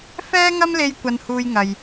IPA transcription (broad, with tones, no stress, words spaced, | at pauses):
fɛː˥ŋɐ˥mle˧j kʷɐ˧nhuː˧jŋɐ˨j